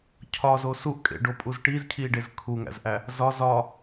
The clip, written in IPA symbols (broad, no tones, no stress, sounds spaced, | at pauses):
cʰ ɒ z o s u ʔ kʼ ḛ ɖ o pʼ u z ʈ i z cʰ i ɖ e z kʰ u ŋ æ̰ z ʔ æ | z ɒ z ɒ